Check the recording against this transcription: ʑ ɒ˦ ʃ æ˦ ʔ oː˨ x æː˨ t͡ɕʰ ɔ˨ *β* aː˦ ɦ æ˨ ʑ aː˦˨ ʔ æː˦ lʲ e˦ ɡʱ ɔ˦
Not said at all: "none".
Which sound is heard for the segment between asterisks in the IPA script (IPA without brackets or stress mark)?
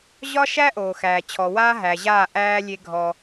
w